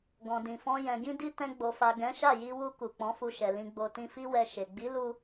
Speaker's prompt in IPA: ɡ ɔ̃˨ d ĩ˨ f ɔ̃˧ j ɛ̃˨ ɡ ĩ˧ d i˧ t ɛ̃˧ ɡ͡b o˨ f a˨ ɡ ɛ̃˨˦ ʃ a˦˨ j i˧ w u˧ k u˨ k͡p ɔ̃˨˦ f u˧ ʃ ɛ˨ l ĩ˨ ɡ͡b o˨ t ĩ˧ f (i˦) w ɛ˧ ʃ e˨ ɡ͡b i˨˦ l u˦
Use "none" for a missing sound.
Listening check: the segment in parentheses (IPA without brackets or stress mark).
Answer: i˦